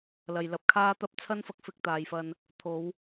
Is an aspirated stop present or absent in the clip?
present